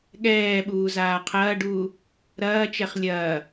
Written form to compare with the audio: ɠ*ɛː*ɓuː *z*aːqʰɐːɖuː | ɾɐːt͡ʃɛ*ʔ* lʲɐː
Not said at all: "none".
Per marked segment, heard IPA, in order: ɛː, z, χ

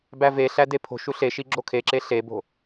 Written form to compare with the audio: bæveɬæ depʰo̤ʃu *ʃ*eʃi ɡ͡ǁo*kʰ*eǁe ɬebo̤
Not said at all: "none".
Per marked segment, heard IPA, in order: ɬ, kʰ

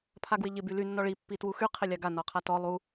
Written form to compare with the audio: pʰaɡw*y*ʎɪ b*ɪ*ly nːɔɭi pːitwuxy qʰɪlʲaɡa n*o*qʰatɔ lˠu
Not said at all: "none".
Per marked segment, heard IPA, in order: ɪ, y, ɔ

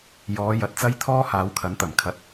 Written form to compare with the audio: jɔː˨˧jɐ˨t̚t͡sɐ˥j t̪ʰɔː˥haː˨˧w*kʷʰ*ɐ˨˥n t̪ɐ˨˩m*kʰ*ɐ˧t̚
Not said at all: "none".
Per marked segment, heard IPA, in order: kʰ, kʰ

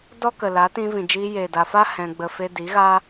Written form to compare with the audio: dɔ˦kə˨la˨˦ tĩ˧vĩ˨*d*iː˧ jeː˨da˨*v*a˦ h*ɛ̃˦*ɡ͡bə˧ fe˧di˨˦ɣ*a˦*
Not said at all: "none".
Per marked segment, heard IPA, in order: d͡ʒ, f, ɛ̃˧, a˦

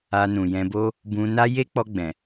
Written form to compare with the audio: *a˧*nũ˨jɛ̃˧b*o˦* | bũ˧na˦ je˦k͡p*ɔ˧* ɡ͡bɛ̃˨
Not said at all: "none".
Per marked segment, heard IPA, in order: a˧, o˦, ɔ˧

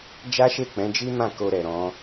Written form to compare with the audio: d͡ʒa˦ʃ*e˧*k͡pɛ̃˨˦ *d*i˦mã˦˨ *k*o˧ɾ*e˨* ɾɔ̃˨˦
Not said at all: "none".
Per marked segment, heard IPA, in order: e˦˨, d͡ʒ, k, ɛ˨

